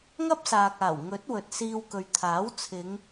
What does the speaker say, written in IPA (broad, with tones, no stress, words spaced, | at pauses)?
ŋɐ˥p̚saː˨k̚aː˨˩w ŋɵ˨˥t̚ wɵ˨t̚siː˧wkɵ˨ɥ t̪ʰaː˨˥wt͡sʰɪ˨˧ŋ